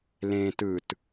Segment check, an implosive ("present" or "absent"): absent